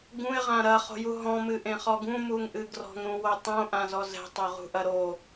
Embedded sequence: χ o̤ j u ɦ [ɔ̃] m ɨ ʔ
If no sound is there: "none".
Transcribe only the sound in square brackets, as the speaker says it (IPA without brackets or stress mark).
ɔ̃